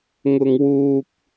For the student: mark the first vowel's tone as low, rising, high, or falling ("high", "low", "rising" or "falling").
high